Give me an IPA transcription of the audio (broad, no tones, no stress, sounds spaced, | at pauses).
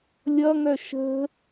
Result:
lʲ ʌ ŋ œ ʃ ə̤